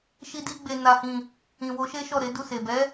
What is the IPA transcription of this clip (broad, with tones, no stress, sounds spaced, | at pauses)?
ʃ i˧ d i˧ ɡ͡b e˨ n a˨ h ĩ˨ | ĩ˨ w o˨˦ ʃ e˦ ʃ ɔ˦˨ ɾ e˨˦ d u˦˨ s e˨ b ɛ˨˦